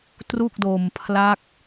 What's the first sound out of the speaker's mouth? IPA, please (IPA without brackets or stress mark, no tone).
t